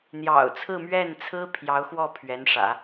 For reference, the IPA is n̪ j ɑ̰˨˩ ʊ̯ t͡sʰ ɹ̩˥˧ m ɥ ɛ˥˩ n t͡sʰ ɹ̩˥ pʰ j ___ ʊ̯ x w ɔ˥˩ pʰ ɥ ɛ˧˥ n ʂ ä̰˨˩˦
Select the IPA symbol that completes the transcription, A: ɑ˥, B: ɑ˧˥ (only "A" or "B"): B